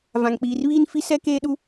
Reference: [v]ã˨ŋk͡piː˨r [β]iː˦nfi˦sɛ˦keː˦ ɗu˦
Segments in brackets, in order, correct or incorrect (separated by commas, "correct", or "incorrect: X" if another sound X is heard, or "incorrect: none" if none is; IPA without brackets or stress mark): correct, correct